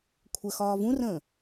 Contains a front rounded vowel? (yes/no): no